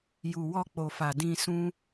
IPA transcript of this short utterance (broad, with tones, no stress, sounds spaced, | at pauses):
j u˨ w ɔ˧ k͡p o˨ f a˨ d ĩ˧ s ũ˦